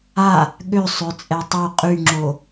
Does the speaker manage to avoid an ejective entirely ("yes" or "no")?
no